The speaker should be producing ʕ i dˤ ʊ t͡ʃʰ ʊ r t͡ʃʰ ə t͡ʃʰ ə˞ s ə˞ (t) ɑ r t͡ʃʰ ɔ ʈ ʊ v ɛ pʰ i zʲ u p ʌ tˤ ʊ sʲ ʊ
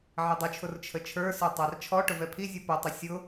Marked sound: incorrect: tˤ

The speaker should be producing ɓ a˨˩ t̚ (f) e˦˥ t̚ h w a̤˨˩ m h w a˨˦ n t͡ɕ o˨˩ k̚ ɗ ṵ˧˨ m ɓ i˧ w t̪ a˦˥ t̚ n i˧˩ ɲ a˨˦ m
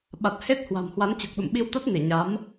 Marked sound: incorrect: h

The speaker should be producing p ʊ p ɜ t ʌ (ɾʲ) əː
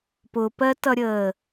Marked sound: correct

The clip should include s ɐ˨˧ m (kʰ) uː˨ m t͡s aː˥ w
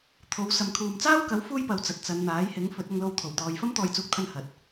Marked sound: correct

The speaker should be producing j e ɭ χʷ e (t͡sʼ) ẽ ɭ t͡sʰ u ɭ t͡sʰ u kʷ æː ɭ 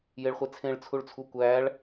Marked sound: incorrect: t͡sʰ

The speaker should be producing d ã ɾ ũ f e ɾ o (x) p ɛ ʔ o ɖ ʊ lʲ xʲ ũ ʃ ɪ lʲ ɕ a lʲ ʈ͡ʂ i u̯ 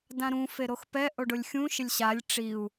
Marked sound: correct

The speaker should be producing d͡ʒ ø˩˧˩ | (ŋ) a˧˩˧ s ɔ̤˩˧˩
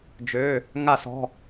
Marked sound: correct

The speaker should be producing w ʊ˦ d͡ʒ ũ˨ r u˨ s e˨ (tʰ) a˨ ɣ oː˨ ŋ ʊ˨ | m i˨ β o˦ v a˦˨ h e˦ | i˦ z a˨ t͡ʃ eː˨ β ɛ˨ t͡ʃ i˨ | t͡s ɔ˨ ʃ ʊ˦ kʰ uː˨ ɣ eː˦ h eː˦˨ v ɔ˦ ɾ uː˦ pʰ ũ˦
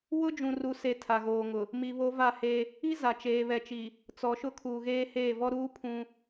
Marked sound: correct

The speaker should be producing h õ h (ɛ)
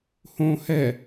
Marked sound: correct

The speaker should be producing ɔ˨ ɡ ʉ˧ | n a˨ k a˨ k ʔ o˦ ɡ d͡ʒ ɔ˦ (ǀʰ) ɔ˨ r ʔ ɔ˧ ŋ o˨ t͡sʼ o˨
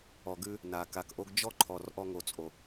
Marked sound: incorrect: ǃʰ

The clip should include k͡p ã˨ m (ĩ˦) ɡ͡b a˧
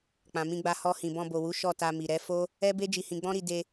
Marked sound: incorrect: ĩ˧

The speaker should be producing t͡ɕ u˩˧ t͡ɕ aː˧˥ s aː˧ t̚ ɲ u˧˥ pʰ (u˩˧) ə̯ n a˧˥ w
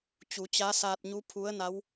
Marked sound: incorrect: u˧˥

